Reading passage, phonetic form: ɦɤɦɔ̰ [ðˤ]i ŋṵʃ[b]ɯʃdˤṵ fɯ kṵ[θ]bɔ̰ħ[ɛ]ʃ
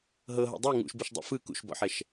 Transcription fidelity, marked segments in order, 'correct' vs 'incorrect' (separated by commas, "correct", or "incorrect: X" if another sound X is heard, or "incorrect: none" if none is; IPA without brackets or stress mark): incorrect: dˤ, correct, incorrect: ʃ, correct